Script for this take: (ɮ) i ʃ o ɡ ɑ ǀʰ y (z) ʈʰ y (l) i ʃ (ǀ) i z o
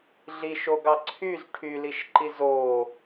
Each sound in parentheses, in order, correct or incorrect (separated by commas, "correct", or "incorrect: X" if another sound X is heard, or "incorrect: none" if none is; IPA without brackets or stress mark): correct, correct, correct, incorrect: ǃ